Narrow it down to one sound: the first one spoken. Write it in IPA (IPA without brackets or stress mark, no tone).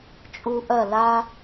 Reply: t͡ʃʼ